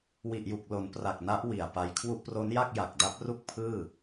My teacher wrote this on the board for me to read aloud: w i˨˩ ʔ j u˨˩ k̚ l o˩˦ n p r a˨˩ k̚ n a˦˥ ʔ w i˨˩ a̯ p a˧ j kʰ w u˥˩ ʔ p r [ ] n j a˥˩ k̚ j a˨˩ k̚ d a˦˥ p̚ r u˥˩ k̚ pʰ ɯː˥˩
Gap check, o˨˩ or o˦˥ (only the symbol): o˦˥